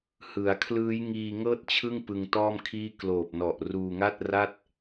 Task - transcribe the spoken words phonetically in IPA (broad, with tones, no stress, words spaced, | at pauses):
hɯ˩˦a̯kʰlɯː˦˥j ŋiː˧ŋɤː˥˩t̚t͡ɕʰɯ˥˩ŋ pɯ˧ŋtɔː˥˩mkʰiː˥˩ kloː˨˩p̚nɔ˨˩ʔ ruː˧ŋa˥˩t̚ ra˥˩t̚